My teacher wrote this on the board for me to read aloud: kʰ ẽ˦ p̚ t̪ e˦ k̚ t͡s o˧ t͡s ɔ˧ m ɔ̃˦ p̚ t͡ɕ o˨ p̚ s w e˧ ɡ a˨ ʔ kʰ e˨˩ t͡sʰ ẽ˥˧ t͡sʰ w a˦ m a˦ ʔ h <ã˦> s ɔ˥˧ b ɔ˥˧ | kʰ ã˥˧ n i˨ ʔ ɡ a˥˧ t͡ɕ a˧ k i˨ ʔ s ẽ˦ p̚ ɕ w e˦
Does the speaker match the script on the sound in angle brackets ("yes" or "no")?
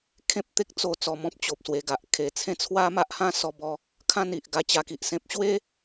yes